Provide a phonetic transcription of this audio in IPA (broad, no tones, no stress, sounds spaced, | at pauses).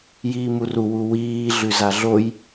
j iː m u r u w u w iː ɮ ʉ z a ɮ o j